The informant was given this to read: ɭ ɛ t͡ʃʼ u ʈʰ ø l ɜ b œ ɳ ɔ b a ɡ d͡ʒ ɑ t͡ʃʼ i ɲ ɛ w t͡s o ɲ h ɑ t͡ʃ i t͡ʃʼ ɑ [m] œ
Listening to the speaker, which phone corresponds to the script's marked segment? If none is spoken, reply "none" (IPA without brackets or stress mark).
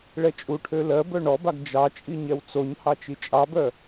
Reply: b